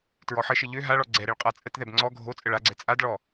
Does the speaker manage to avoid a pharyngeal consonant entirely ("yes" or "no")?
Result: no